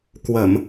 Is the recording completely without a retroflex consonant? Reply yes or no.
yes